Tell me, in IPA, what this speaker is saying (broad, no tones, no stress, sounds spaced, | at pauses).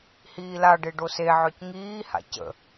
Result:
h iː l a ɖ e ɖ o s e ʕ œ c ŋ iː h a̰ c ə̰